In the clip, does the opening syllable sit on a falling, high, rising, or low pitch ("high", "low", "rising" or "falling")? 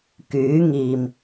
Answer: rising